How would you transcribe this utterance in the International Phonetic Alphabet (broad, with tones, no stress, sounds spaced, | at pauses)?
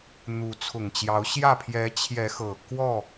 n̪ u˨˦ t͡sʰ ʊ˨˩ ŋ t͡ɕ j ɑ˨˦ ʊ̯ ɕ j ä˥˨ pʰ j ɛ˨˦ t͡ɕʰ j ɛ˨˦ x ɤ˨˩ k w ɔ˥˨